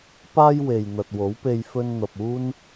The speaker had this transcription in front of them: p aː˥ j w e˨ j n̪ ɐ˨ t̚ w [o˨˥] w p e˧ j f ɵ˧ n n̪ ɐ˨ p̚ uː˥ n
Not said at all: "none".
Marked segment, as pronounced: o˨˥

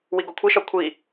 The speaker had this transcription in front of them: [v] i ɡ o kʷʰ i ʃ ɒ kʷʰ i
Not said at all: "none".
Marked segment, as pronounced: w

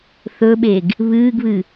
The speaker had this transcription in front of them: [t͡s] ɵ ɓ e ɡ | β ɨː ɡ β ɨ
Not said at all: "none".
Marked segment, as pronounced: θ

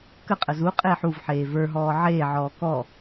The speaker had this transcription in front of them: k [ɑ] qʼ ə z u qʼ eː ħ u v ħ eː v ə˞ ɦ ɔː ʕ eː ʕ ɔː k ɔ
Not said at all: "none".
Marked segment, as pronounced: ə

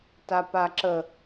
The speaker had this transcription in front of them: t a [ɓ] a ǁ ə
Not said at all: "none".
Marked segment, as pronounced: p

